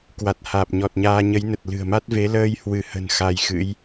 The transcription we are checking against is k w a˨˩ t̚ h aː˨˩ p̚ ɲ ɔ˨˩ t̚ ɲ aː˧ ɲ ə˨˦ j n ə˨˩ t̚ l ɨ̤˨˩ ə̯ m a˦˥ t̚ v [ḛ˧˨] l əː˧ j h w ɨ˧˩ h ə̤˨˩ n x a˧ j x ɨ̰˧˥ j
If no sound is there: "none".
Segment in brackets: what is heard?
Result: e˨˦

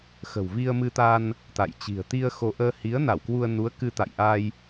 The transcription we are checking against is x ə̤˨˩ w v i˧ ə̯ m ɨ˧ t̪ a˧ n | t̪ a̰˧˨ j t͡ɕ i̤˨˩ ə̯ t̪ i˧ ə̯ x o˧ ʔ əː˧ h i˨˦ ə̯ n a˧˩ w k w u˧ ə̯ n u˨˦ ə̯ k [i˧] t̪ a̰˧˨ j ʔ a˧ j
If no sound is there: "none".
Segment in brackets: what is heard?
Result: ɨ˧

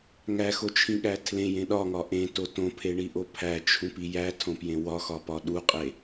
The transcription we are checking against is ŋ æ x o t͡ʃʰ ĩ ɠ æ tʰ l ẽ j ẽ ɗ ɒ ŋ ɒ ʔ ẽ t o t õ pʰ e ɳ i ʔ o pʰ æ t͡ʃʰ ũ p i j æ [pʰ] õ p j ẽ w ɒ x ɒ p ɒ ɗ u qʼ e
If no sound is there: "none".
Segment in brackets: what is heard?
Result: tʰ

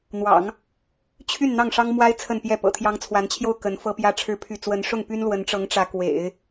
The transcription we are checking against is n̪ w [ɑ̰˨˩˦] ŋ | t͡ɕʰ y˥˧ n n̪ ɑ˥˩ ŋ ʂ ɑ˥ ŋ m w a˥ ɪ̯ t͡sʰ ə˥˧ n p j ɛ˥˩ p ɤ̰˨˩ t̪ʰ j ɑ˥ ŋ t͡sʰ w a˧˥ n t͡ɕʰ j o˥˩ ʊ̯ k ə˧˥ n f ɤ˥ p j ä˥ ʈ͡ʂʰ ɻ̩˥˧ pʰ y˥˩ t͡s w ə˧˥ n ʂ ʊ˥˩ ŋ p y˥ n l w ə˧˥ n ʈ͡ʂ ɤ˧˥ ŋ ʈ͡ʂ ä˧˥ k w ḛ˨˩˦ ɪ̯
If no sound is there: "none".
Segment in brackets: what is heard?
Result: ɑ̰˨˩˦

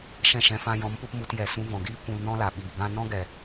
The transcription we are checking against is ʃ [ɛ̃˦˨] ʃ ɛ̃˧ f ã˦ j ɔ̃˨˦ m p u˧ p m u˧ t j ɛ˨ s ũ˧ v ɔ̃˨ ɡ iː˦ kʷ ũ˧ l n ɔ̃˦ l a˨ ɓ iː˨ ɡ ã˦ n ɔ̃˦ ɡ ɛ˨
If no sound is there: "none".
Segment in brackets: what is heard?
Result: ɛ̃˦˨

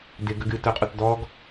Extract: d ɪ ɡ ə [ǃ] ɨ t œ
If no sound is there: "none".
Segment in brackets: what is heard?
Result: ɡ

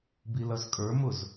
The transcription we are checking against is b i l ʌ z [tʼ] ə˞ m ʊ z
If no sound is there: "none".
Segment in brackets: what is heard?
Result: kʼ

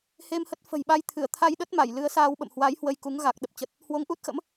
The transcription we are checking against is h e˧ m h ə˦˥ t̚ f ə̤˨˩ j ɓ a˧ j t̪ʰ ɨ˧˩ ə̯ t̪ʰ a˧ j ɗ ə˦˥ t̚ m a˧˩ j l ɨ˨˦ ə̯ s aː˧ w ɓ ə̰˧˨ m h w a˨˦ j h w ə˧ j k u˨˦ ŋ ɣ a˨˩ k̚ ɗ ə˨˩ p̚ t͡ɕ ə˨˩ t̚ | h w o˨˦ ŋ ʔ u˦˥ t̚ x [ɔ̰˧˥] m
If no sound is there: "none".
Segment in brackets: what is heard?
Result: ə̰˧˥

